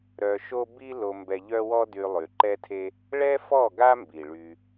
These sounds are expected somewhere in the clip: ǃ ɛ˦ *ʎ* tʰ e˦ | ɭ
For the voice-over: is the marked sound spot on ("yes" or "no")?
no